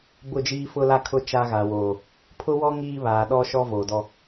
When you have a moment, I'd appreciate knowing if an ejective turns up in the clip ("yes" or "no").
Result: no